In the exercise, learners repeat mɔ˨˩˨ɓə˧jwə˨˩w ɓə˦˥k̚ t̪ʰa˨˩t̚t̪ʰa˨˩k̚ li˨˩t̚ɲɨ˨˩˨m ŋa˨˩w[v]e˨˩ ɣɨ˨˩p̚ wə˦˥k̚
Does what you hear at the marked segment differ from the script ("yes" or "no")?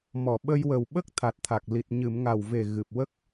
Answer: no